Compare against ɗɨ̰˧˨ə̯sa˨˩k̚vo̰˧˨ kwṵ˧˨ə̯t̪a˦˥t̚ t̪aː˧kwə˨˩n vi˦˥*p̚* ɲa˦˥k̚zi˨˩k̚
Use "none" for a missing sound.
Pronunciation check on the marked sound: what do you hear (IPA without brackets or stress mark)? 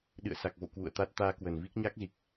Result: k̚